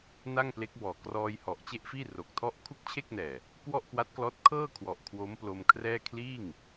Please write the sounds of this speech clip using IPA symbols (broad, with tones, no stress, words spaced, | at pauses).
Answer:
na˥˩ŋple˦˥k̚bɔː˨˩ krɔː˧j hɔ˨˩ʔt͡ɕe˥˩ʔfiː˥˩ ro˨˩k̚tʰɔ˥˩ʔ kʰu˥˩k̚t͡ɕʰe˥˩k̚nɛː˨˩ | kwɔ˥˩ʔkwa˦˥t̚klɔː˦˥t̚ kʰɤː˥˩ kʰwɔ˨˩ʔkʰwo˦˥mplo˧mkʰrɛː˥˩ kʰliː˥˩ŋ